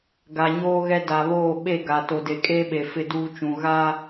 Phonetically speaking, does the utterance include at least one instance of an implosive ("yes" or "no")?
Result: yes